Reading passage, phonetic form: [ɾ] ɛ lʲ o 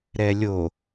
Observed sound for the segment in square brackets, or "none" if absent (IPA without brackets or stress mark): ɾ